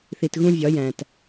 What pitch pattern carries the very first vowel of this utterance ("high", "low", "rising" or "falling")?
low